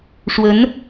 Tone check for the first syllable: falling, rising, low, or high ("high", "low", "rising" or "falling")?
rising